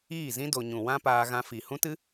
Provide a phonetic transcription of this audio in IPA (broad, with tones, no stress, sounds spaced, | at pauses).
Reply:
iː˦˨ z ĩ˦ d o˧ ɲ ũ˨ w ã˦ p aː˧ ɣ ã˧ f i˨ h ũ˦ t ɨ˦